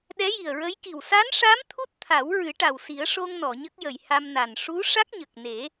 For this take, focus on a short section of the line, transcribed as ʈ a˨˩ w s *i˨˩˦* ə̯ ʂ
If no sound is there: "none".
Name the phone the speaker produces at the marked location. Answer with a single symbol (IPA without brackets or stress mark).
i˨˩˦